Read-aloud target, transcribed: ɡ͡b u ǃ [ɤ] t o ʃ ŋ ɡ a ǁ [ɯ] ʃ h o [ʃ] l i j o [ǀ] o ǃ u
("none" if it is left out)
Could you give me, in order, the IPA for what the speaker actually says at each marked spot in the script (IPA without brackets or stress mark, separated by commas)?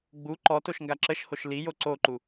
ɔ, ə, ʃ, ǀ